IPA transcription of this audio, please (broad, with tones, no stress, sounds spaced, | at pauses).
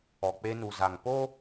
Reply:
ɔ˨ k͡p e˦ n u˨ z a˨ ŋ p o˦